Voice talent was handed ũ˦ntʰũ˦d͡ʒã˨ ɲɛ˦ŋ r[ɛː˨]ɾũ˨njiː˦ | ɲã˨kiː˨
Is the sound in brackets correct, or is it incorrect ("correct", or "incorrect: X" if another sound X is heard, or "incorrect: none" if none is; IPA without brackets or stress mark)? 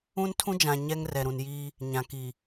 incorrect: ɛ˨